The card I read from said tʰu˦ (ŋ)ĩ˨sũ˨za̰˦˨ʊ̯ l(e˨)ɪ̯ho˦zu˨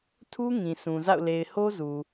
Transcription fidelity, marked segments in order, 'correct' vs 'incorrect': correct, correct

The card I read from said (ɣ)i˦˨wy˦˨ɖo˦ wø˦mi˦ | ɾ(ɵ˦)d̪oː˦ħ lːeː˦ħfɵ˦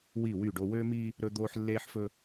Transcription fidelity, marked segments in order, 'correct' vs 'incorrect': incorrect, correct

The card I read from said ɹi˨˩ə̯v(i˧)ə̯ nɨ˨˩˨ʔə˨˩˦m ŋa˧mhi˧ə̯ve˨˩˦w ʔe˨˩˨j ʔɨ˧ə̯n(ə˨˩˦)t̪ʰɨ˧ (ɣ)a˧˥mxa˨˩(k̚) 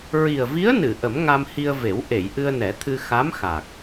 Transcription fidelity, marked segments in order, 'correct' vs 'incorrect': incorrect, incorrect, incorrect, correct

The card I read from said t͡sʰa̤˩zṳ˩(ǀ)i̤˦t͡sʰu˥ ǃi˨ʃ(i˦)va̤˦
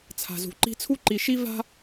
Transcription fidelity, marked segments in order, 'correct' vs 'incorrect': incorrect, correct

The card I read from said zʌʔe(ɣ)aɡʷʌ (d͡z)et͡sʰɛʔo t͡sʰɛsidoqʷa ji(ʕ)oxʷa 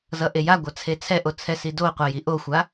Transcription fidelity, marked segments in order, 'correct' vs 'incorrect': incorrect, incorrect, incorrect

